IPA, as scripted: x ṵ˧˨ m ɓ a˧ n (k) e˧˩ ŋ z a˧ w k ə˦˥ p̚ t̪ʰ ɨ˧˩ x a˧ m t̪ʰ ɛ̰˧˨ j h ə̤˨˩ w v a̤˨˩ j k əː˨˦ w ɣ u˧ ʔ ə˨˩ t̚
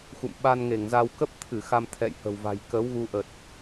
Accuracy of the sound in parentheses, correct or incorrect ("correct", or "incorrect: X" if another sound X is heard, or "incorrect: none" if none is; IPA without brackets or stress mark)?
incorrect: ŋ